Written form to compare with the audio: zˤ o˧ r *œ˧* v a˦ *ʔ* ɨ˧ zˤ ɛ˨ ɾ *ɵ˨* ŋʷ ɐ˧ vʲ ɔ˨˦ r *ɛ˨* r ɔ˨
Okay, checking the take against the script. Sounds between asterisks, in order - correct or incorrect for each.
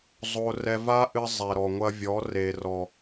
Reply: incorrect, correct, incorrect, incorrect

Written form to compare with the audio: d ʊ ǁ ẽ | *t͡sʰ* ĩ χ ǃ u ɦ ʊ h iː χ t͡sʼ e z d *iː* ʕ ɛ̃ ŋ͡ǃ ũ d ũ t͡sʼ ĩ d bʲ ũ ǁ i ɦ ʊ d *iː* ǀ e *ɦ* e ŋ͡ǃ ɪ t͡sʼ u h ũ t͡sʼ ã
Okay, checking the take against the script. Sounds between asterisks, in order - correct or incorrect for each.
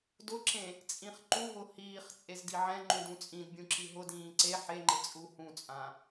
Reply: incorrect, incorrect, incorrect, incorrect

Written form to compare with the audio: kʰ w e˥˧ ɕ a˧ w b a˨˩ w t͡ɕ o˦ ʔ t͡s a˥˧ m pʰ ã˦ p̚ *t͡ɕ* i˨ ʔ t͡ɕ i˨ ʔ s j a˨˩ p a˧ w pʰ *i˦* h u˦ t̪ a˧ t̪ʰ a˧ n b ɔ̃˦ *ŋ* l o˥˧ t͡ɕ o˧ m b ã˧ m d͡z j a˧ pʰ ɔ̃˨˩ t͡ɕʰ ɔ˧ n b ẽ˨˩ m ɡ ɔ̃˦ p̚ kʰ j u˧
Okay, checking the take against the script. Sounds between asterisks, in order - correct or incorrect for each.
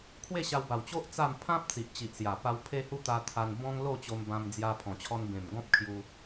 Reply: incorrect, incorrect, correct

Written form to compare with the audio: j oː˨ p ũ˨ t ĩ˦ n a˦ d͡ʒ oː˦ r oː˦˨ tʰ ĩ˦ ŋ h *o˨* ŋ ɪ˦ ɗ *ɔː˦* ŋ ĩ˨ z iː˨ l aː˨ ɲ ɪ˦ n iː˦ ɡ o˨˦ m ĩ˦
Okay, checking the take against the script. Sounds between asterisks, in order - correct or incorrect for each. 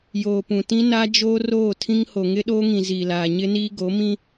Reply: correct, incorrect

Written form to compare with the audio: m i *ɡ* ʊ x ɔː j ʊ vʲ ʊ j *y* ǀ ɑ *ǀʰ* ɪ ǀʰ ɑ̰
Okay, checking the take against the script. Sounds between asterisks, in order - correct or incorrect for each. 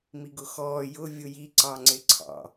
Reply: correct, incorrect, incorrect

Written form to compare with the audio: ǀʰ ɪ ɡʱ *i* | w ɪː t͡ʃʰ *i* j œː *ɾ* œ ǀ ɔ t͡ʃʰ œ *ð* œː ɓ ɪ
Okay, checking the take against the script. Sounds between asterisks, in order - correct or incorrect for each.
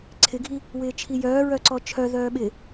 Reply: correct, correct, incorrect, correct

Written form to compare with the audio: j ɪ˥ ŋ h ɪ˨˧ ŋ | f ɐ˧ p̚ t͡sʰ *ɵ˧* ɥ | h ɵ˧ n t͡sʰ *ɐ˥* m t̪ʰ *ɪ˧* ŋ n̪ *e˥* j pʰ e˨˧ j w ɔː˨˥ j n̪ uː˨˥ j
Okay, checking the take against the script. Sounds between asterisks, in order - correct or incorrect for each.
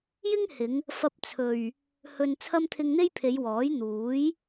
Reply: incorrect, correct, correct, correct

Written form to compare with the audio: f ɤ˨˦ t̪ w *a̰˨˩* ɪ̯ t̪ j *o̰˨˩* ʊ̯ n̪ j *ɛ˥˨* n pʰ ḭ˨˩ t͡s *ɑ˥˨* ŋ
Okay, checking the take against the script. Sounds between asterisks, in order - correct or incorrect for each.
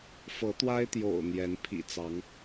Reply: incorrect, correct, incorrect, incorrect

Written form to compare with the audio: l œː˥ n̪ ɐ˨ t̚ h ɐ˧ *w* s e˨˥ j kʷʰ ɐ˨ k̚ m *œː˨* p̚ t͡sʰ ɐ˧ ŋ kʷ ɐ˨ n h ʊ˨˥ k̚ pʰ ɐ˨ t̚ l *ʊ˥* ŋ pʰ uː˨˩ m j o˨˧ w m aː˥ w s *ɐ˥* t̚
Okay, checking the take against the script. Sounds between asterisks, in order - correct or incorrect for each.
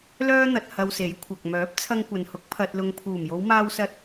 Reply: correct, incorrect, incorrect, correct

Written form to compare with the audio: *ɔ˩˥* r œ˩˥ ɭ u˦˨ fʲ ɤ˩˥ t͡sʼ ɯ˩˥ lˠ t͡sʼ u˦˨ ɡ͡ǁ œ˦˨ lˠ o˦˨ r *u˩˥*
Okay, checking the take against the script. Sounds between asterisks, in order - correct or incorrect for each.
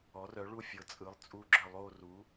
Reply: correct, correct

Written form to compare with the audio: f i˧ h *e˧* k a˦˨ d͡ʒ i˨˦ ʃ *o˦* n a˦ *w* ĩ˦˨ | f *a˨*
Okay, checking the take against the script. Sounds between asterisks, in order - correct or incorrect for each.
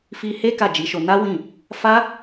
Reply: incorrect, incorrect, correct, incorrect

